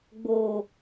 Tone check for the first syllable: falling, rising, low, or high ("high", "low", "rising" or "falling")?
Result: low